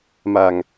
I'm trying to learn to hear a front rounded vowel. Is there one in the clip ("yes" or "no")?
no